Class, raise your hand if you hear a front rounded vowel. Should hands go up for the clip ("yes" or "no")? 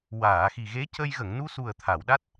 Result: no